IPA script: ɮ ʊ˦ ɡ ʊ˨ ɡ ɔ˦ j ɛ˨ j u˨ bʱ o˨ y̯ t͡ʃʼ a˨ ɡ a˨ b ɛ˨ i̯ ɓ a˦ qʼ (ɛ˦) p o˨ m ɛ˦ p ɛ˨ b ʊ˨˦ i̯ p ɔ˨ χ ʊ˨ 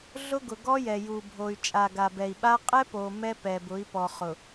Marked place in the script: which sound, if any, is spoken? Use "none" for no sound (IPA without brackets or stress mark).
ɛ˦